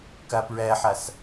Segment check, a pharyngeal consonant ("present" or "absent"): present